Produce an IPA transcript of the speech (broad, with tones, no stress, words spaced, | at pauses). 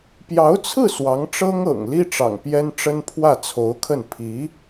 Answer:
pjɑ˧˥ʊ̯t͡sʰɹ̩˥˩ swɑ˧˥ŋʈ͡ʂɤ˥ŋɤ̰˨˩ŋ li˥ʈ͡ʂɑ̰˨˩ŋ pjɛ˥nʈ͡ʂə˥n pʰwä˥˩t͡sʰo˧˥ʊ̯kʰə˥˩n pʰi˧˥